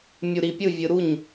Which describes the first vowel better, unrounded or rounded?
rounded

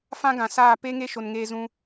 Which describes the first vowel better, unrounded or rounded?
unrounded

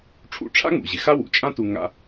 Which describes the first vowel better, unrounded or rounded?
rounded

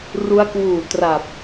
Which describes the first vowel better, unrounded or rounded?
rounded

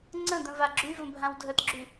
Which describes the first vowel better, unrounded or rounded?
unrounded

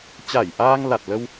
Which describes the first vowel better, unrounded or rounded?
unrounded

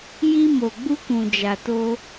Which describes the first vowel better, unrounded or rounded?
unrounded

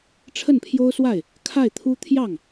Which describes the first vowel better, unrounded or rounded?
unrounded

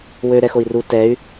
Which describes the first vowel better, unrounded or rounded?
rounded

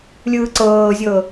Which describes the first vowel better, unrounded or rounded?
unrounded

